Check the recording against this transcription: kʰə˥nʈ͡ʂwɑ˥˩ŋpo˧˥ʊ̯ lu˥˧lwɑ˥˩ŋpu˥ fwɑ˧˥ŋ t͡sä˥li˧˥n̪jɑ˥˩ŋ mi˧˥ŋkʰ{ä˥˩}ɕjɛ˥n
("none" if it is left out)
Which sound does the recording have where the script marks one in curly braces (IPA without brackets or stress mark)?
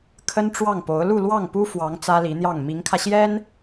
ä˧